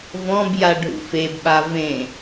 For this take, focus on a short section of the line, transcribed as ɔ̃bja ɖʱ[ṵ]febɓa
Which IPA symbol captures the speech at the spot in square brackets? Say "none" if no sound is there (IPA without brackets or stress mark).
ṵ